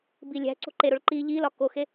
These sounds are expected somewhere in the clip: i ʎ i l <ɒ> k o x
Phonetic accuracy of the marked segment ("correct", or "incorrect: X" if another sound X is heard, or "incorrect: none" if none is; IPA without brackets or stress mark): correct